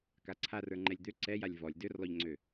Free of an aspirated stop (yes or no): no